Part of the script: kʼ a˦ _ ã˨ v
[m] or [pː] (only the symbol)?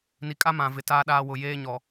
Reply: m